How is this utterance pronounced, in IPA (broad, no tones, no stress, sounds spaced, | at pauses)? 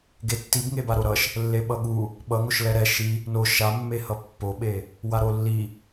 ɡ e tː i b ŋ e b a ɾ o ɾ ʌ ʃ | lː e ɓ ʌ ɠ u | ɓ ʌ ŋ o ʃ l ɛ ɾ ɛ ʃ i | n o ʃ a mː e h ʌ pː o ɓ e | w a ɾ o lː i